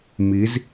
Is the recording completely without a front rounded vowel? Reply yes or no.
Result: yes